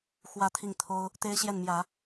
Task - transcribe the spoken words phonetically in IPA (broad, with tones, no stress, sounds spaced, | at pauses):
x w ä˥˧ t̪ʰ i˥˩ ŋ t̪ʰ o˥ ʊ̯ | t̪ e˥ ɪ̯ ɕ j ɛ˥˩ n m j ä˨˩˦